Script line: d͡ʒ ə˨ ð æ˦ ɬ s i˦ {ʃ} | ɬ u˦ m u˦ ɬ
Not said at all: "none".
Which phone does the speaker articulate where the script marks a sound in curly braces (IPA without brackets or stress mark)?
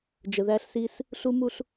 s